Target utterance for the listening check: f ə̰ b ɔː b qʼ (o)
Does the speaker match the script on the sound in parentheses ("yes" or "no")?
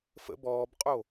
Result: yes